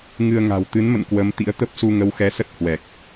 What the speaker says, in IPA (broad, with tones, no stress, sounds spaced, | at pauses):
ŋ ɨ˧ ə̯ ŋ a̤˨˩ w t̪ ɨ˨˦ n m ə̰˧˨ n k w ə˨˦ m t̪ ḭ˧˥ ə̯ t̪ ə˦˥ p̚ s u˧ ŋ ə˨˦ w x ɛ˨˦ s ə˦˥ t̚ h w ɛ˨˩ k̚